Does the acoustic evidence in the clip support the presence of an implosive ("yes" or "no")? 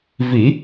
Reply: no